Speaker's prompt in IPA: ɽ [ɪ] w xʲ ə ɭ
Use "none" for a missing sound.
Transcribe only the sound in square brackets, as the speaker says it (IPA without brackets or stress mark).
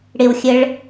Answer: ɪ